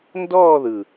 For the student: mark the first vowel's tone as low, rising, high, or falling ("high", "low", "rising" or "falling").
falling